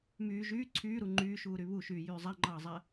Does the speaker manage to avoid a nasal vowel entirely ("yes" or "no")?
yes